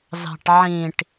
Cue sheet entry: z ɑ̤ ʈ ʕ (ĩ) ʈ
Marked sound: correct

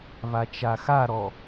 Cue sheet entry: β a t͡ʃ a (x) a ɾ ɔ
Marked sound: correct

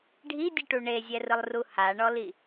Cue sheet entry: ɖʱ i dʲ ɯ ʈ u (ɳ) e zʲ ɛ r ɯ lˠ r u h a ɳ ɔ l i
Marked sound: correct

